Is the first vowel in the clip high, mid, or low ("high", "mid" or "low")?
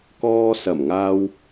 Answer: mid